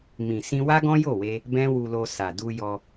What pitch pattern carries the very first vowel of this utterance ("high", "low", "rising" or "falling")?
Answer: low